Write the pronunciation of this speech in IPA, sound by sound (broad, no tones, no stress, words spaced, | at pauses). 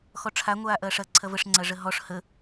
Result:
xɔʈ͡ʂʰa ŋʷaːʔɐːʂɐ ǀʰɐvəʂ ŋ͡ǀɐʐəɦɔʂ hə